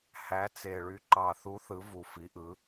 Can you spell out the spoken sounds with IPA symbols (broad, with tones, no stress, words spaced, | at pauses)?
hæ˨˦t͡se˨˩ɭy˨˦ ǃɑ˨˩θu˨˦ θɯ˨˦vu˨˩fi˨˦ʔɯ˨˦